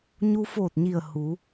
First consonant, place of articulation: palatal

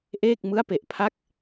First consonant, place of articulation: glottal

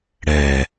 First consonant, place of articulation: retroflex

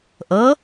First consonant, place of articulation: glottal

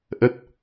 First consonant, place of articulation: glottal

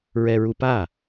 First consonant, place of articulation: alveolar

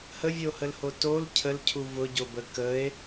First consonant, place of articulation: glottal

